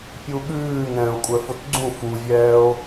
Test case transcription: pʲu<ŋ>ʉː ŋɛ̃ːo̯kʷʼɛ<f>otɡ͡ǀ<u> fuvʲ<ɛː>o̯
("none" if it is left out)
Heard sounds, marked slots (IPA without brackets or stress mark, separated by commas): ɠ, f, ũ, ɛː